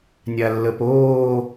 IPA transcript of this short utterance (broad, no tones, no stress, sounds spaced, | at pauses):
nʲ a lː ə p oː